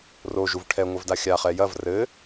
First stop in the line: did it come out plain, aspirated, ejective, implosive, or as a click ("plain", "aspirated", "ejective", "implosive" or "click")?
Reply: aspirated